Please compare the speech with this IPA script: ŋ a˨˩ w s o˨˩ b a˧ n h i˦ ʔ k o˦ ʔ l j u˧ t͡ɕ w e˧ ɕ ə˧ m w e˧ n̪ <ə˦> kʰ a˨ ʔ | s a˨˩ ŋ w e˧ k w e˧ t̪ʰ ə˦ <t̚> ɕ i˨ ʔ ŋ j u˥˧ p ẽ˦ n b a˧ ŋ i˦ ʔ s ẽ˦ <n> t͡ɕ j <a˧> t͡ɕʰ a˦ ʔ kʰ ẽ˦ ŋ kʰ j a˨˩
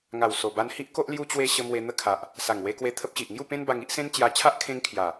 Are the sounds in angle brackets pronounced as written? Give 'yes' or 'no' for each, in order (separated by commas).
yes, no, yes, yes